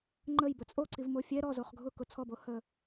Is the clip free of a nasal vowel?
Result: yes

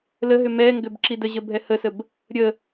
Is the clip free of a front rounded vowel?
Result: no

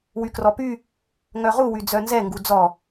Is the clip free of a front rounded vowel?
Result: no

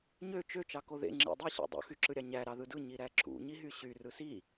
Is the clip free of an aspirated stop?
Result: yes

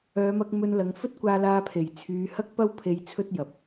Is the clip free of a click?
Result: yes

